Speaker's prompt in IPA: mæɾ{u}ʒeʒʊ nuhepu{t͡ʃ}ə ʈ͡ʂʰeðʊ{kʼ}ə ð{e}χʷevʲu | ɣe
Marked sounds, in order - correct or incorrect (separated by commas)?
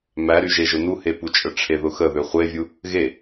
incorrect, incorrect, incorrect, incorrect